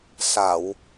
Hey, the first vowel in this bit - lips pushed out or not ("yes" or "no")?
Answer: no